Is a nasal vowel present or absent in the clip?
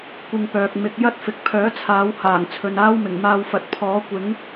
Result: absent